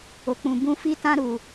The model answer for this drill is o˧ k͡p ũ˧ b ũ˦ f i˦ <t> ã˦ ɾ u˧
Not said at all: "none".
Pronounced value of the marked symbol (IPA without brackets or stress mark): t